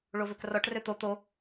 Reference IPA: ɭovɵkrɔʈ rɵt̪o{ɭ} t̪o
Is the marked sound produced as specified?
no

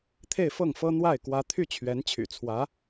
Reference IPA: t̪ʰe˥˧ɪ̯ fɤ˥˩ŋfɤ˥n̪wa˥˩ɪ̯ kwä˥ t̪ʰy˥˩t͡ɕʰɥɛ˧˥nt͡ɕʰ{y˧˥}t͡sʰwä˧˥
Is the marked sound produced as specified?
no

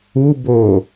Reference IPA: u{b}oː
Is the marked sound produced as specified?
yes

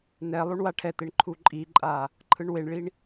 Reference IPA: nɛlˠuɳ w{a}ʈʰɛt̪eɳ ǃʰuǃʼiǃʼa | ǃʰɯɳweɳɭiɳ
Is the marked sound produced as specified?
yes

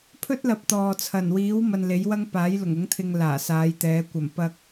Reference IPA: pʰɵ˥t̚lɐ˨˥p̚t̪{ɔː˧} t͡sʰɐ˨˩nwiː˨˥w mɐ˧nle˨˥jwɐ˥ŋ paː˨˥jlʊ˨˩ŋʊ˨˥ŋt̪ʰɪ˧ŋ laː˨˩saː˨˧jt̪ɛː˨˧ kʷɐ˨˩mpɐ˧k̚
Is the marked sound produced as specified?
no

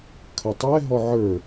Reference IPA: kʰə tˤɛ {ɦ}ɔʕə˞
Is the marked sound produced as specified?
yes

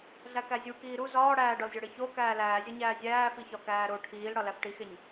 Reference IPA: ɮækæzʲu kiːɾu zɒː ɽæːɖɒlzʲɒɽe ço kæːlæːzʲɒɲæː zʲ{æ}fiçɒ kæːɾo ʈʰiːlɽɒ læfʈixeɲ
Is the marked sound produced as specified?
no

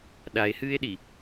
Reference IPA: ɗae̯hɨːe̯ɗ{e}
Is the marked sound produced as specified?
no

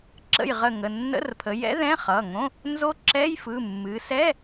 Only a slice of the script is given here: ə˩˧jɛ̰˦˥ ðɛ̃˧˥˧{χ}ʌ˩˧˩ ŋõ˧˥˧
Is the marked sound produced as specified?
yes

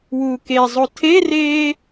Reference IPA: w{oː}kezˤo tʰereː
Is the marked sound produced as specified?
no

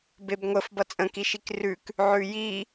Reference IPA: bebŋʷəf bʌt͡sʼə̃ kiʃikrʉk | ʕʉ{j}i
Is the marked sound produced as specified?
yes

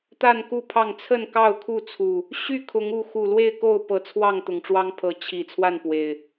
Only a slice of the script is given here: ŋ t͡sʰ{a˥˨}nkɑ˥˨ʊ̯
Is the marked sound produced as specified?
no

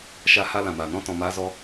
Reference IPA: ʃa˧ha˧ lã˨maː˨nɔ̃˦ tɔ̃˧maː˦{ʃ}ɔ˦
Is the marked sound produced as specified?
no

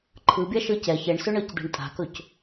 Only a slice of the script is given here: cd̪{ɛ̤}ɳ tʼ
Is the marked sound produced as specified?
yes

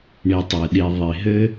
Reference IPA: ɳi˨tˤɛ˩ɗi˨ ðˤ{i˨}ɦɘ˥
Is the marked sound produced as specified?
no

